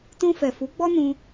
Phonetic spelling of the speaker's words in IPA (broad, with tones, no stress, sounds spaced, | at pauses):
t ũ˧ f ɛ˨ f u˨˦ ɡ͡b ɔ˦ n ũ˧